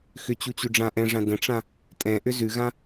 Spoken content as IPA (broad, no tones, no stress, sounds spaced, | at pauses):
x ʏ t͡ɕ u t͡ɕ ʉ ɖ͡ʐ ã ʔ ɛ̃ ʐ ã d ə̃ ʈ͡ʂ ã | tʼ ɛ̃ ʔ ʏ z ʉ ɣ ã